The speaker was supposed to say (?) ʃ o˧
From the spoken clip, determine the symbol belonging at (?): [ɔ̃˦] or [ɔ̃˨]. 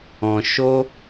ɔ̃˨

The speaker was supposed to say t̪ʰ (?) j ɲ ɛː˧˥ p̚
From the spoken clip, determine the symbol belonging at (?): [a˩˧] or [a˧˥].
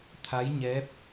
a˧˥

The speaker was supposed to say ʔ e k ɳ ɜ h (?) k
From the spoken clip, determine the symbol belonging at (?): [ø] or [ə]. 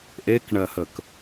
ə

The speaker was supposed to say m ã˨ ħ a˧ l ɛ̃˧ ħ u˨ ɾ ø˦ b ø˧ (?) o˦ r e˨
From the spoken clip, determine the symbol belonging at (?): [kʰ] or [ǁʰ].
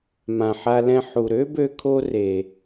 kʰ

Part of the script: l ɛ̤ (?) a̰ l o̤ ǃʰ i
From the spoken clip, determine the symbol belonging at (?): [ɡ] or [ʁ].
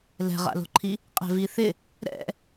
ʁ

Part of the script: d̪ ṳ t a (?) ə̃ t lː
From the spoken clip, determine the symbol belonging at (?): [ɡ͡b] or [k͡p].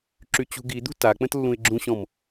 k͡p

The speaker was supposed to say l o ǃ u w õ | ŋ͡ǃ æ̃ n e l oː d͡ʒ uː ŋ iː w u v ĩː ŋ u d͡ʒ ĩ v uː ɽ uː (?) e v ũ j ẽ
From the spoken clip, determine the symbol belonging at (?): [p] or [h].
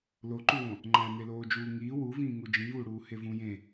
h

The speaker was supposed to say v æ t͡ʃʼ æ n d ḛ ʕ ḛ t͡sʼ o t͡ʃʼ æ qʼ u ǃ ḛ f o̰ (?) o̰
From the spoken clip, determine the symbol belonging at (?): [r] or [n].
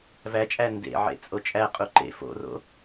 r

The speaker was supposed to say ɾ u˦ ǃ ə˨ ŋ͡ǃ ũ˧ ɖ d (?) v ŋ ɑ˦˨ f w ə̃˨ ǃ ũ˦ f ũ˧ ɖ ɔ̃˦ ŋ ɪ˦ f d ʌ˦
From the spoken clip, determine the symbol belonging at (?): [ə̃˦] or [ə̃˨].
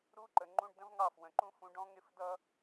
ə̃˦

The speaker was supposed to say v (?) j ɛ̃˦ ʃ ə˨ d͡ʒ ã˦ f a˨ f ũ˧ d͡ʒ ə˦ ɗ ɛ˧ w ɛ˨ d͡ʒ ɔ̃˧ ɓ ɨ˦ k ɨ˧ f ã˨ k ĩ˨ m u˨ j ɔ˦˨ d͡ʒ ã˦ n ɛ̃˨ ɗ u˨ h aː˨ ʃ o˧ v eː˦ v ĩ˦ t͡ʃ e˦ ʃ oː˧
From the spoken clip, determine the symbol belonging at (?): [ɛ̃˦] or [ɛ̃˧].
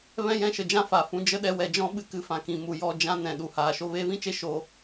ɛ̃˦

